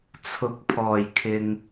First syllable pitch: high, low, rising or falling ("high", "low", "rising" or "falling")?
rising